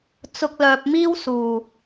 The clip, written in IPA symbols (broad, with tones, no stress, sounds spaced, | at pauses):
t͡s ʊ˧ k̚ l œː˨ p̚ m iː˥ w s uː˨˩